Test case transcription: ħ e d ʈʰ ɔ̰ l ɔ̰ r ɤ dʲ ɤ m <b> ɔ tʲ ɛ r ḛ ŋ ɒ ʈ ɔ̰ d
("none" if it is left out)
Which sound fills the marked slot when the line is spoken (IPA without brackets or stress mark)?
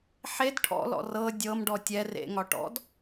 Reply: ɖ